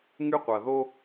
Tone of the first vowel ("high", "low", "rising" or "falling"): high